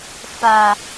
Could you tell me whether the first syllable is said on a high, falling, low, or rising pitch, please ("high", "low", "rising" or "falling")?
low